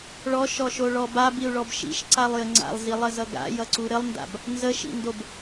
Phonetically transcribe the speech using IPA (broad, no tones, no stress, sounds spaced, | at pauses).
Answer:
ɭ ɔ ʃ ɔ ʃ o ɭ ɔ b a b i u̯ ɭ ɔ b ʃ ḭ ʃ ǀ a lˠ j ə ŋ͡ǀ a̰ lˠ z i lˠ ə z ʌ ɡ a̰ j ʌ ǀ u ɾ ə lˠ n d a̰ b | n z ə ʃ ḭ n d o b